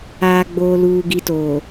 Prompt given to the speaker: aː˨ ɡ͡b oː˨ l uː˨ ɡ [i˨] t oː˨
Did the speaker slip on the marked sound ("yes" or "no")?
no